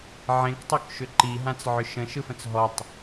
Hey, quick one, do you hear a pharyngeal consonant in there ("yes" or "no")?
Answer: yes